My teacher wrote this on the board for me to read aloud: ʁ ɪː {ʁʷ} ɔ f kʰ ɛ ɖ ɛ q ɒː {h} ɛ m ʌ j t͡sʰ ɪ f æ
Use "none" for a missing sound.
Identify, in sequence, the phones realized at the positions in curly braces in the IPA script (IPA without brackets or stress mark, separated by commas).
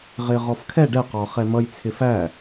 ʁ, χ